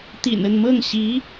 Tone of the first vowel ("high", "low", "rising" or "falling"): low